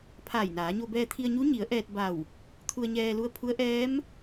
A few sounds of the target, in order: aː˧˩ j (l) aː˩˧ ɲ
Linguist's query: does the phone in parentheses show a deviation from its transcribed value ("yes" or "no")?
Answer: yes